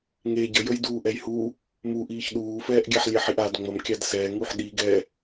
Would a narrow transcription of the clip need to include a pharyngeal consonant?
yes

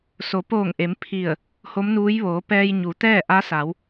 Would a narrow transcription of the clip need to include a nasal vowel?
no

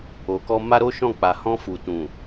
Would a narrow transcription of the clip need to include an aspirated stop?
no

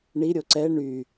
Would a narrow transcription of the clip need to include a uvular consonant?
no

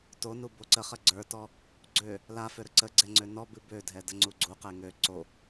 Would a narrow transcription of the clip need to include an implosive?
no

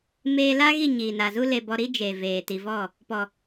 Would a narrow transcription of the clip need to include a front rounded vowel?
no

